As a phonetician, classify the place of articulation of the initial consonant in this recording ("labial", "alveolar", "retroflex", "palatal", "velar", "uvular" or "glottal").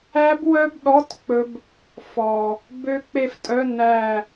labial